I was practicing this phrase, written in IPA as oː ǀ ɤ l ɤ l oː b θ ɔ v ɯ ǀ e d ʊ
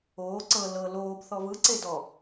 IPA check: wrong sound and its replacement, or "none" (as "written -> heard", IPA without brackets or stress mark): ʊ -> ɔ